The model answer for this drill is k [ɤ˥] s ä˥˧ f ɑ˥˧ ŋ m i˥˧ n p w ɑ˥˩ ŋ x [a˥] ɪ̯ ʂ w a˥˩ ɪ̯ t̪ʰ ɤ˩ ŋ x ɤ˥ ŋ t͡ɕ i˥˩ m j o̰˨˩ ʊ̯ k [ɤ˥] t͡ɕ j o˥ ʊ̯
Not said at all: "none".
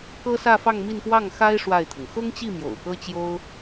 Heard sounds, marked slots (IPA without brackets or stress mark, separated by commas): ɤ˥, a˥, ɤ˥